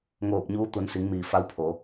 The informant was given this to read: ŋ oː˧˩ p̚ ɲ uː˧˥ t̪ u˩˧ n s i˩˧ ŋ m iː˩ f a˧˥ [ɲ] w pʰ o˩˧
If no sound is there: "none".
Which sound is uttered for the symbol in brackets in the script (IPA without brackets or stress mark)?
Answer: none